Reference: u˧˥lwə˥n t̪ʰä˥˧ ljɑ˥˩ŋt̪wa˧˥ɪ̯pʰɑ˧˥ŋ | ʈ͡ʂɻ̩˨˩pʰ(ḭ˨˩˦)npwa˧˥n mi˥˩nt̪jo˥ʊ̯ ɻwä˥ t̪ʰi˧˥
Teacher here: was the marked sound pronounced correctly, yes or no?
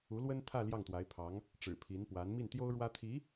no